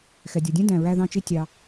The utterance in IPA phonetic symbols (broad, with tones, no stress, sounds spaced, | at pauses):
x ɛ˩ dʲ ʌ˩ dʲ ɛ̃˥ d æ̃˩ ɹ æ˧ ð ɑ̃˧ t͡ʃ i˧ tʲ ɑ˩